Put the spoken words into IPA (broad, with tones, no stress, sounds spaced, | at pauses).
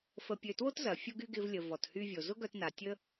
f ə˧ pʲ ø˧ t w o˥ t z ɐ˩ fʲ ʊ˧ ɡ y˧ ɡ ɪ˧ v lʲ ə˩ v ɔ˩ t h y˧ vʲ o˩ z ʊ˥ ɡ œ˧ t n a˩ tʲ ə˥